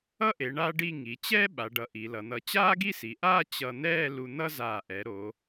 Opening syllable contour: falling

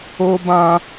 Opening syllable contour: high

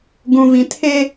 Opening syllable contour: low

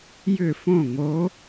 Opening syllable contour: falling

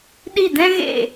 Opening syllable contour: falling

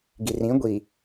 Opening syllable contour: low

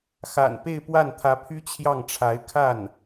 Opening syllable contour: low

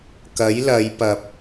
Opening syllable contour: rising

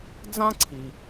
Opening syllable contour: high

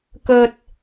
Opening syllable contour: high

